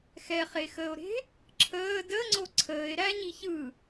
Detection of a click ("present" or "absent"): present